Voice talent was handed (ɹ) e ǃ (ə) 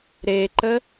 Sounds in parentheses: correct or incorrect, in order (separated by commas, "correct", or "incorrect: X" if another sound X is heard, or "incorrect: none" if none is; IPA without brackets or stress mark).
incorrect: ɾ, correct